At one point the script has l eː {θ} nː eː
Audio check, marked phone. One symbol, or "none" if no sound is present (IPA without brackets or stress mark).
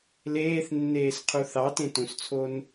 θ